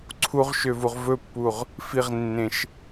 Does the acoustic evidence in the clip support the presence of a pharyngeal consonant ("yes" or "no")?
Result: no